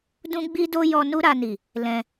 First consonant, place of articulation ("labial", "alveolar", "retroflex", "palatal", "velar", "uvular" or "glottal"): alveolar